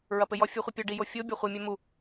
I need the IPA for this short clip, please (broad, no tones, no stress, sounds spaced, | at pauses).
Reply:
ɹ ɐ p ɘ j ɔ fʲ u χʷ ɘ pʲ ɔ ɖ i j o fʲ o bʲ ɔ χʷ i mʲ ɛ m u